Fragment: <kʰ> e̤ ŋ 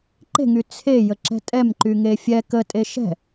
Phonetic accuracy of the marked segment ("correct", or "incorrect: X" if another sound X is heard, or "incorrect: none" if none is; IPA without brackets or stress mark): incorrect: ǃ